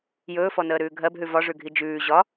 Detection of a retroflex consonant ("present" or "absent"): present